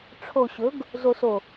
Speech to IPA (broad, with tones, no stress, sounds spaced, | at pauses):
ʈ͡ʂʰ o˨ ɕ ɵ˨˦ ɡ | z o˨ s o˨